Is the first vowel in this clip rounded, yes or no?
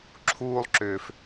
yes